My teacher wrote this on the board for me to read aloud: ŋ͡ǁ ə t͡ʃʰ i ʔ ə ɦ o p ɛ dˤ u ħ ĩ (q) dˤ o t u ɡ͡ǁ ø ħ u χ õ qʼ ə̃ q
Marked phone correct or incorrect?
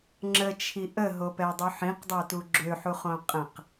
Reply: correct